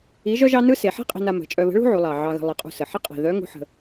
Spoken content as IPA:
i˧˥ ʒ œ˥ ʒ ɑ˥ n ɯ˥ s e˩˧ ħ i̤˥ qʼ i̤˧ n a˧ m ə̤˩˧ t͡ʃʼ œ˧ β ə̤˧˥ ɭ ṳ˥ ʕ u˩˧ lˠ ɑ˩ ʕ ɑ˧ ɣ ə̤˧ lˠ i˩˧ qʼ ṳ˧ s ə˩ ħ ɪ˥ qʼ i̤˩ ð œ˧˥ ŋ ṳ˧˥ ħ ə̤˧

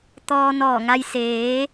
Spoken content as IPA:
t̪ ɔː˧ n ɔː˧˩ ŋ a˧ j s eː˩˧

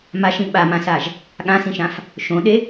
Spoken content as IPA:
m a ʃ ĩ ɓ a m ã s a ʒ | ɠ ã s ĩ ʃ ã f | ʃ õ ɗ e

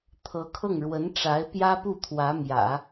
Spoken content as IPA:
t̪ʰ ɤ˧˥ kʰ ɤ˥˩ ŋ ɻ w ə˧˥ n ʈ͡ʂ a˧˥ ɪ̯ p j ä˥ p u˥˩ t̪ʰ w ä˧˥ m j ä̰˨˩˦

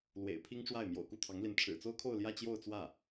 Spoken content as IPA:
l w ḛ˨˩ ɪ̯ pʰ i˥ ŋ ʈ͡ʂ w a˥˩ ɪ̯ m j o̰˨˩ ʊ̯ k u˥˩ t̪ʰ ɑ˧˥ ŋ l i˧˥ n ʈ͡ʂʰ ɻ̩˨˩ t͡s o˥ ʊ̯ kʰ o˥˧ ʊ̯ l j ä˥˧ t͡ɕ j o˥˧ ʊ̯ t͡s w ä˥˩

